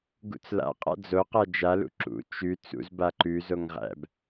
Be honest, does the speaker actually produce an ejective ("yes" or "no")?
yes